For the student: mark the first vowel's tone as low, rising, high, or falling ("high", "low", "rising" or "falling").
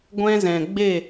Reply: high